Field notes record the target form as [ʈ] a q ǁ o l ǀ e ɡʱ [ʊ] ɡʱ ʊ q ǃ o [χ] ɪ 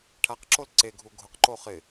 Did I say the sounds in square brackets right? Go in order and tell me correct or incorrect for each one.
incorrect, incorrect, correct

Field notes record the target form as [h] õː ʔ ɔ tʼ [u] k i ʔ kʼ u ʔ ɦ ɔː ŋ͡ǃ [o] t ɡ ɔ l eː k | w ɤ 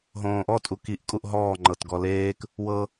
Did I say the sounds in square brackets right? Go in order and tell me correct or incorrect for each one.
incorrect, correct, incorrect

